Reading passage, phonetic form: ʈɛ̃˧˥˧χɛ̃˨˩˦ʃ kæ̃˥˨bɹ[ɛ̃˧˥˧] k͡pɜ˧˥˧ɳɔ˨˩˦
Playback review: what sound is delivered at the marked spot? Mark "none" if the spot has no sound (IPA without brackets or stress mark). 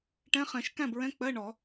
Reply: ɛ̃˧˥˧